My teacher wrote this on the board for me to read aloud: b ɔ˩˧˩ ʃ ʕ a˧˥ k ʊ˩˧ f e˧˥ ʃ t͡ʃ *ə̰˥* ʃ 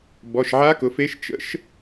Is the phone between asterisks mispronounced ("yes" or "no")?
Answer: no